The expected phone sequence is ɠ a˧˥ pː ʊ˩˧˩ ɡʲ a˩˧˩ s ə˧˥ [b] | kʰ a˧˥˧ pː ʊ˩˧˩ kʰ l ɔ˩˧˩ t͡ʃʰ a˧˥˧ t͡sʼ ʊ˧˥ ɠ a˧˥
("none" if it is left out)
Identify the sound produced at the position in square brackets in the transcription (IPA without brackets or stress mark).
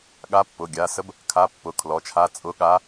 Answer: b